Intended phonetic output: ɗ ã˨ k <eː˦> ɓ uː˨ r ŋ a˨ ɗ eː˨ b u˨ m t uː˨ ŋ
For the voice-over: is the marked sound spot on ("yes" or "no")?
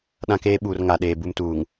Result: no